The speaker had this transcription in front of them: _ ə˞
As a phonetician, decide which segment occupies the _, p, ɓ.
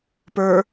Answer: p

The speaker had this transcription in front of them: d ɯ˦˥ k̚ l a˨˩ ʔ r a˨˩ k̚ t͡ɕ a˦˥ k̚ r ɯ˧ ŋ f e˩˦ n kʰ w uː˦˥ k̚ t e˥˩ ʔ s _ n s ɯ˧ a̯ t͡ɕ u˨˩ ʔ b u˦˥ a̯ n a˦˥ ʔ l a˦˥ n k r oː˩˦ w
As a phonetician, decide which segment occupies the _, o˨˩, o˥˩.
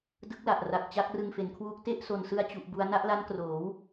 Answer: o˨˩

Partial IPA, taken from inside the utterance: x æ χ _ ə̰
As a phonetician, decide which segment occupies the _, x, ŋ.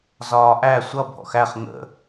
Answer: ŋ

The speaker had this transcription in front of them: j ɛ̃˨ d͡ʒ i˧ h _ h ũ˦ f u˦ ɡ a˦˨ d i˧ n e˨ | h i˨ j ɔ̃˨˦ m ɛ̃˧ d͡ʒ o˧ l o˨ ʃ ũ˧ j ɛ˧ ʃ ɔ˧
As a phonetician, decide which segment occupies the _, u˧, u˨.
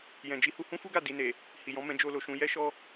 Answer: u˧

